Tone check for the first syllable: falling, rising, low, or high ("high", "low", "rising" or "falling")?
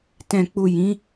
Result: low